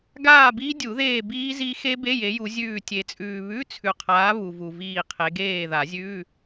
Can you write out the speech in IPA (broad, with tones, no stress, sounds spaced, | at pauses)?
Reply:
ɡ aː˦˨ b i˦˥ dʲ u˨˩˦ ð eː˦˨ b iː˦˥ z i˦˥ x e˦˥ b e˧˥˧ j e˨˦ j u˨˦ zʲ ʉː˦˨ tʲ e˨ t͡sʼ ʉː˨ β ʉ˧˥˧ t͡sʰ ʉ˨ qʰ aː˨˦ β u˨ v u˨ v iː˦˨ qʰ e˨˦ ɡ eː˦˨ ð a˨˩˦ zʲ ʉː˧˥˧